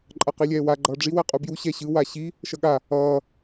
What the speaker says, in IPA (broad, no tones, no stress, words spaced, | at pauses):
ǃʼʌqilʲɛːwa ɡ͡ǃʌːɖ͡ʐi wɛqʼubju ɕɛɕɯ waɕi | ʃʌɠa | ʌː